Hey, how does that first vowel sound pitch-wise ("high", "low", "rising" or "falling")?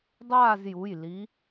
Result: falling